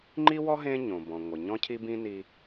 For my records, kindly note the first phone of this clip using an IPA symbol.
ŋ͡ǃ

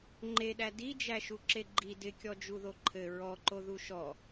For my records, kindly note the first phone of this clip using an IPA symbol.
ŋ͡ǃ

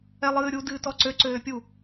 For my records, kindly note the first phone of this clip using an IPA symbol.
ɛ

